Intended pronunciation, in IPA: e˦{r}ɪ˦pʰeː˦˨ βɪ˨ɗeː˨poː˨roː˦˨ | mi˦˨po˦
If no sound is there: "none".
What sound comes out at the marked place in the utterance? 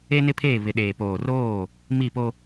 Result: n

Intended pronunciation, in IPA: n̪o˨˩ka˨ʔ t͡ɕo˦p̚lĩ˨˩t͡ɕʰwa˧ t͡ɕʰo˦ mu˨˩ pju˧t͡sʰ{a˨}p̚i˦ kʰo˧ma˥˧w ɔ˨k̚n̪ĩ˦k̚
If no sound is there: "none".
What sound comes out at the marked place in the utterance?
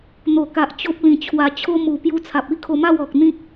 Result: a˨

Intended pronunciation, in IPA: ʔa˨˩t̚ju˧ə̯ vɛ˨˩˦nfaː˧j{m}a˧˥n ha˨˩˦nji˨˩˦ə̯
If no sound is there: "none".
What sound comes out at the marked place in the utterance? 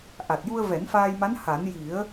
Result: m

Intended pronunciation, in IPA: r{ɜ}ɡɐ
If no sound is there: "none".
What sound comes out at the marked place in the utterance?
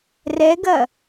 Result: ɛ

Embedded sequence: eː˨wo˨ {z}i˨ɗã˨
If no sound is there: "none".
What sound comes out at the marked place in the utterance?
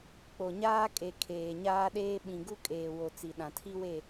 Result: t͡s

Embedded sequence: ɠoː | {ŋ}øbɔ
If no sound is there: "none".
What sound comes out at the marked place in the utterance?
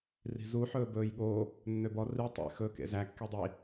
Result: nː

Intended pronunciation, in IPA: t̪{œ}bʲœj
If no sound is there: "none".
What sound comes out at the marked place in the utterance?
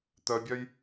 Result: œ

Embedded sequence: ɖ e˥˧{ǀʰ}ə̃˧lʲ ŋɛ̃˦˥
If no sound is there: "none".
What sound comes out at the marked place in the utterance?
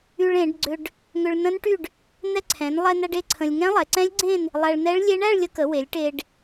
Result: ǀʰ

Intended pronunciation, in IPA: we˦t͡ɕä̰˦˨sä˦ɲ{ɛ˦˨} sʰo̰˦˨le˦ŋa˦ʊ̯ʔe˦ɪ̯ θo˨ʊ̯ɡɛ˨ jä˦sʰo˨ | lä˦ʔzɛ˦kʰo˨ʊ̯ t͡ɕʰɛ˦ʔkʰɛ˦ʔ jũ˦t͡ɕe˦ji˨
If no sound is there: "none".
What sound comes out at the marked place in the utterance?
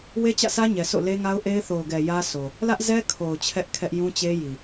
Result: ɛ˨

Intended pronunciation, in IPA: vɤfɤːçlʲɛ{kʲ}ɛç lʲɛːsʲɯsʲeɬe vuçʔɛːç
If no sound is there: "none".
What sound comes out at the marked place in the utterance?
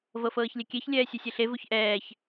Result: kʲ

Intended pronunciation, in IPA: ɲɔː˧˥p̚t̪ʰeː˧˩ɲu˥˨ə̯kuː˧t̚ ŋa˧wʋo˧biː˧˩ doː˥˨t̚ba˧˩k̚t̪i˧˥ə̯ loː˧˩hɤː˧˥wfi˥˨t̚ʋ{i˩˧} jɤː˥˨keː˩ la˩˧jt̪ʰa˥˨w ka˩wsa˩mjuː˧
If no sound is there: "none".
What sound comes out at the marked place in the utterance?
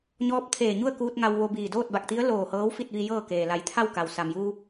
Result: i˧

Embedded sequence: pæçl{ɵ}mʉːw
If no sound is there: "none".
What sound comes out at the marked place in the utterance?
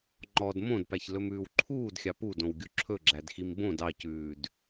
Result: ɵ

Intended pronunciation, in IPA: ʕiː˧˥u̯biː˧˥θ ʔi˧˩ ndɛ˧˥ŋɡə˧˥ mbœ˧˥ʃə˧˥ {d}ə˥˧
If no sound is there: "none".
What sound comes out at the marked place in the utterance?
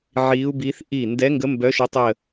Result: tˤ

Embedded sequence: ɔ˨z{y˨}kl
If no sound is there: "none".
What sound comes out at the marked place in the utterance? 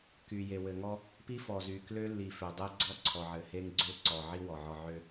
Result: y˨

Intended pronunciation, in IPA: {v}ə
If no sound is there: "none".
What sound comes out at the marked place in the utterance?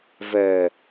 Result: v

